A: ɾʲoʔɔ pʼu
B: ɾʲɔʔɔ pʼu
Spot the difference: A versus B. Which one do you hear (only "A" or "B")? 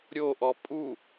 A